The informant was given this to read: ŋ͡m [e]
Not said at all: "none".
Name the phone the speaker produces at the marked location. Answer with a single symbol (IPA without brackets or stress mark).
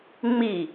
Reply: i